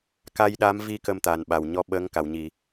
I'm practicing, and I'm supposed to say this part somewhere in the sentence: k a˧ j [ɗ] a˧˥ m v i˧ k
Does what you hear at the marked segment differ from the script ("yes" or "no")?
no